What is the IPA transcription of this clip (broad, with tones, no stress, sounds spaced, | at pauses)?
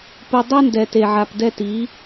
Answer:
p u˨ dˤ ɛ˦ n d ɛ˨ t e˨ ʕ a˨ p d ɛ˦ t i˨˦